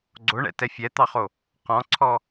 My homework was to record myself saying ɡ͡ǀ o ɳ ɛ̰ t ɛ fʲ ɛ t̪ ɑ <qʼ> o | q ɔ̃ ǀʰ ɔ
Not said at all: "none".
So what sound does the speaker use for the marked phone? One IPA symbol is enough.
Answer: χ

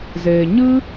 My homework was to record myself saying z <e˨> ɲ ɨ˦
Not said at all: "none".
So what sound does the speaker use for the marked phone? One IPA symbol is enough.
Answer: eː˨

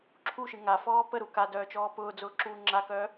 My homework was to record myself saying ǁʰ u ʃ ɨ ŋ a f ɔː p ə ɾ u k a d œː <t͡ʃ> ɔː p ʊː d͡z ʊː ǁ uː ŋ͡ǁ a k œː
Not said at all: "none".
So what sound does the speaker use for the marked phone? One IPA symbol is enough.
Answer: t͡ʃ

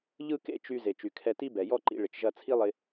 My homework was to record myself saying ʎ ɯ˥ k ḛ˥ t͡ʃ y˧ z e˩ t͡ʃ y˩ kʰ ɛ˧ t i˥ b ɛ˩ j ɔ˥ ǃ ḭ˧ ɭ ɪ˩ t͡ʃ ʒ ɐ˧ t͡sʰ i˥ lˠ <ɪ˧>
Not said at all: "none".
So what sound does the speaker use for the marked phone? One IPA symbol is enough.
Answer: ɪ˧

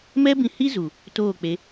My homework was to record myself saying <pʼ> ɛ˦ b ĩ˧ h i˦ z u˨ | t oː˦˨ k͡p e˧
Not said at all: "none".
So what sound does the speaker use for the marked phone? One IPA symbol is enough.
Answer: m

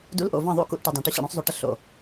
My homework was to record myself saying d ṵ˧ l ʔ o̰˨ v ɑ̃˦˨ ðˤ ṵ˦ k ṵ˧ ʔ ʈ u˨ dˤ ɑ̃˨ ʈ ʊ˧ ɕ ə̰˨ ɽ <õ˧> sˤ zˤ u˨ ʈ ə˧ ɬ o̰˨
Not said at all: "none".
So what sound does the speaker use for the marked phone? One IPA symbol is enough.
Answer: õ˧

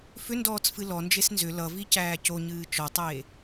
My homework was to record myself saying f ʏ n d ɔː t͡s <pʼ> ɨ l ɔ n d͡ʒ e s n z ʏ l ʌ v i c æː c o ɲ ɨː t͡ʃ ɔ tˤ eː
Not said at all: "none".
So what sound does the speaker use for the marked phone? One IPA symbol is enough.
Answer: f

